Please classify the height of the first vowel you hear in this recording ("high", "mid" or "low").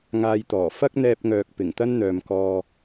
low